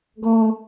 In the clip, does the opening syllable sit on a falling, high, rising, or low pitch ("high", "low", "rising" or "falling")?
low